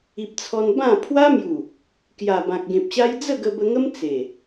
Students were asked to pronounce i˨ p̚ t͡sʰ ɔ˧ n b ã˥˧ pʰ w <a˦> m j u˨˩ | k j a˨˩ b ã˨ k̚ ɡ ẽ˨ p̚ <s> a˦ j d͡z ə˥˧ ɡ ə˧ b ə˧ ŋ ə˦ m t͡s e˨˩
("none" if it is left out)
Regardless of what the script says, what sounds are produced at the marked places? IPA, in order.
a˦, ɕ

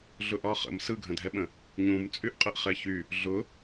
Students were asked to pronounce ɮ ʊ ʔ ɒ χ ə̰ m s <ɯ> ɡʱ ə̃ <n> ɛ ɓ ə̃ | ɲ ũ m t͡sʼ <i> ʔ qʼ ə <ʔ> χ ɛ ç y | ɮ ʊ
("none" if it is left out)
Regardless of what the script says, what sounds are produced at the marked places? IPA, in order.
ɯ, dʱ, y, ʔ

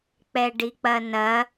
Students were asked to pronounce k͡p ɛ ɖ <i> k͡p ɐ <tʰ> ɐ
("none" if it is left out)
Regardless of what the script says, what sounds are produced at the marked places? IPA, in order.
i, n

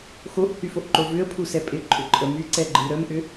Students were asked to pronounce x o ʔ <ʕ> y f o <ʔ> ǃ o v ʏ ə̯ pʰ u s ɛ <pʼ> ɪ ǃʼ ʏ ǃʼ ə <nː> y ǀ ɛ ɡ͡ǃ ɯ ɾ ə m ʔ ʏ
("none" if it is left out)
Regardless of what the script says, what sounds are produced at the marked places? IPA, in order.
h, ʔ, pʼ, m

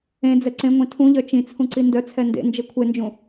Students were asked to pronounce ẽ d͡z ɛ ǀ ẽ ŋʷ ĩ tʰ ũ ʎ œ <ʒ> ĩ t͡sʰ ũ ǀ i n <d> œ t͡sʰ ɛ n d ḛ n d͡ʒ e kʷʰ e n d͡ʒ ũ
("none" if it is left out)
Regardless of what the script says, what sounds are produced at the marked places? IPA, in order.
t͡ʃ, d

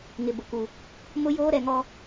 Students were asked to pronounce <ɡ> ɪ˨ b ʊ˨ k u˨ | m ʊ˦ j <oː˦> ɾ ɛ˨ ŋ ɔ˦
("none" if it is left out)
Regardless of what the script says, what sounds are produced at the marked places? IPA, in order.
ŋ, oː˦

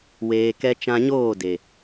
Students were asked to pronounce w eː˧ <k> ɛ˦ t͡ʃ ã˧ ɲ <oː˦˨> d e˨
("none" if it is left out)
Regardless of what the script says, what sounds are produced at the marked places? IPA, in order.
k, oː˦˨

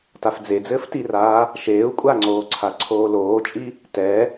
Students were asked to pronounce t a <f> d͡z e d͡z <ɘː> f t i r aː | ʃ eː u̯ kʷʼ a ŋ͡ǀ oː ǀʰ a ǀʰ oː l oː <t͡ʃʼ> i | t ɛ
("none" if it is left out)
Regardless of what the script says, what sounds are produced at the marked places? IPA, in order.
f, ɘː, t͡ʃʼ

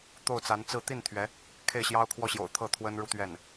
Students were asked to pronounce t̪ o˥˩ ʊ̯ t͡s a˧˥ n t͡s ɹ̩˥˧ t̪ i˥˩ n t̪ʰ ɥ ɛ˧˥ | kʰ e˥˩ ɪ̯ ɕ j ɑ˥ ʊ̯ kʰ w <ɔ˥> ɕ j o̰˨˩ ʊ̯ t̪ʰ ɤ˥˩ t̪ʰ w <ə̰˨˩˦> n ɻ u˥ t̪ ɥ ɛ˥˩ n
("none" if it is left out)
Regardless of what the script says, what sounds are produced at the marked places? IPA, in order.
ɔ˥, ə˥

